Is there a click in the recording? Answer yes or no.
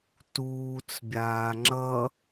yes